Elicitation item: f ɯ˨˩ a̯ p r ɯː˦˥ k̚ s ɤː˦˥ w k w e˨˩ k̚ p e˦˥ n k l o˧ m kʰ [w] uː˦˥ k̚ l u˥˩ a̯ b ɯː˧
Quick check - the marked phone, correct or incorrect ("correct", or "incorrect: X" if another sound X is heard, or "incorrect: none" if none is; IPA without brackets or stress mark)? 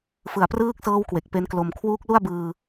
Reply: correct